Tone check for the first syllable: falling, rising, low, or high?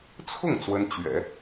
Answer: falling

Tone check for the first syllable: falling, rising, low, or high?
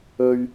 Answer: high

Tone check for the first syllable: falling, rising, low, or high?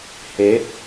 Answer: rising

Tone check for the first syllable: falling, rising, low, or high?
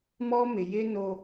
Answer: high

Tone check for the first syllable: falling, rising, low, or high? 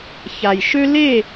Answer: low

